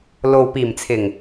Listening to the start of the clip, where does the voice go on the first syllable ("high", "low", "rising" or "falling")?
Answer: low